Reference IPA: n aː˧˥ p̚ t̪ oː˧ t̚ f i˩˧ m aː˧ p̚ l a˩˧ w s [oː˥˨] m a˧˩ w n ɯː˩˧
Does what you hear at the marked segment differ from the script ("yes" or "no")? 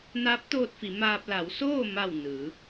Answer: no